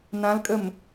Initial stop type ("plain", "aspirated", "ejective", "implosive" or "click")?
ejective